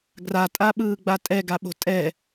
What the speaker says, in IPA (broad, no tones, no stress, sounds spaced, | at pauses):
ɡ r a tʼ a ɓ ɯː ɡ͡b a tʼ ɛ ɡ a ɓ o̤ tʼ ɛ